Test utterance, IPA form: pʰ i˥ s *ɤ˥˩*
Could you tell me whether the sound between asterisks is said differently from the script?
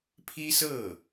no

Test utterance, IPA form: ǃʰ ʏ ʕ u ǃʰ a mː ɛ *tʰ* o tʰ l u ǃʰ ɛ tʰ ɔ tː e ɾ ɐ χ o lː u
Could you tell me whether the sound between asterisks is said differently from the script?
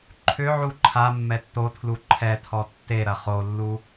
yes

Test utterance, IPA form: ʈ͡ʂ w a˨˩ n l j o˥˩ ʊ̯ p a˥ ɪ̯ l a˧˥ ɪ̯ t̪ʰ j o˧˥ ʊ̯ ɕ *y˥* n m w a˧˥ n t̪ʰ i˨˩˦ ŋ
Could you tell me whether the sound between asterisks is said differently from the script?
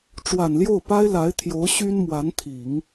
no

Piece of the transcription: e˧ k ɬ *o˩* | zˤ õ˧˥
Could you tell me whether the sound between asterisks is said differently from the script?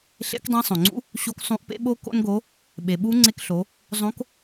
yes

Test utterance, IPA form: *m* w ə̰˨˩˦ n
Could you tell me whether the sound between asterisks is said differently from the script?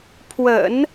yes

